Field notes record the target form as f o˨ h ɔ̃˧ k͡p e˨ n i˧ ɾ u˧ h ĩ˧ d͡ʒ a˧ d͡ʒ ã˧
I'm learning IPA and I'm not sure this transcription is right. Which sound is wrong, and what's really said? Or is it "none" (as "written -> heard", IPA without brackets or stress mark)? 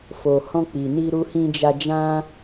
e˨ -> i˨